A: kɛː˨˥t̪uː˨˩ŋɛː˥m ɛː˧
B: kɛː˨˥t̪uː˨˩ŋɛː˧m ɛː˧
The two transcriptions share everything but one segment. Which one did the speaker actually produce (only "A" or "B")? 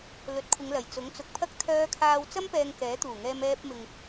B